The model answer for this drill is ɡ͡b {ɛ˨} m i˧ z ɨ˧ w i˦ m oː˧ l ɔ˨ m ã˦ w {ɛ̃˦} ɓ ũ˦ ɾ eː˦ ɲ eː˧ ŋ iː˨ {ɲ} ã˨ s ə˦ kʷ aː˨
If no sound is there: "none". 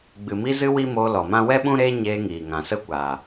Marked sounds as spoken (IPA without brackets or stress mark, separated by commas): ɨ˨, ɛ˦, ŋ